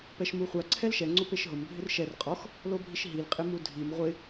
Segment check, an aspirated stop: present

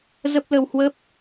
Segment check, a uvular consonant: absent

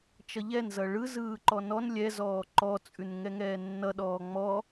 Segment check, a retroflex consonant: present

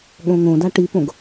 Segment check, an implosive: present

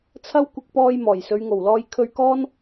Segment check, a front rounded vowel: absent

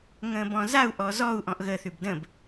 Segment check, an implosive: absent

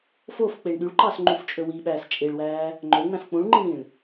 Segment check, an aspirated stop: absent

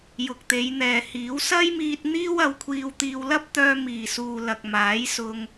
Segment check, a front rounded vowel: present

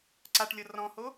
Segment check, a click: present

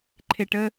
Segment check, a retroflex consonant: present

